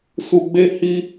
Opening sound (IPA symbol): s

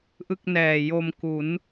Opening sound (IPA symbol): ʔ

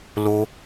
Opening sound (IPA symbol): l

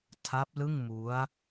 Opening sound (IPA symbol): tʰ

